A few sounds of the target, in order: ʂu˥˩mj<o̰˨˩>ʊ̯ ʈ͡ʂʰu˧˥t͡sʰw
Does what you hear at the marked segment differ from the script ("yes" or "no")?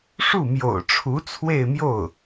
no